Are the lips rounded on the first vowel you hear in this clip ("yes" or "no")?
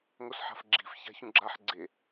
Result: yes